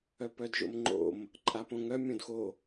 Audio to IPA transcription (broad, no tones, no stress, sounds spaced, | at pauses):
œ p œ d ʒ o̰ m ŋ͡ǃ o̰ m | ǃʼ a p õ ŋ œ mʲ õ d x o